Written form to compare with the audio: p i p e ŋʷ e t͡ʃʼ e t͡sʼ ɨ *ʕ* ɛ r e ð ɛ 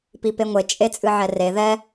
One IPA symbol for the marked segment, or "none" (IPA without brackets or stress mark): ʕ